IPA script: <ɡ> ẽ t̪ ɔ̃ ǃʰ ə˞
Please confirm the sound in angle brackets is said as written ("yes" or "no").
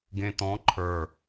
yes